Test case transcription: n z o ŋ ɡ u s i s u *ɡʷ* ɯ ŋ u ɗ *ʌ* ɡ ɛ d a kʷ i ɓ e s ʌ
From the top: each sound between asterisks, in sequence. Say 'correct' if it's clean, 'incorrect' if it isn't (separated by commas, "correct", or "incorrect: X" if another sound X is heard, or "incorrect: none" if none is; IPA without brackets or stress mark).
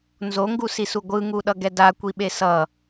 correct, correct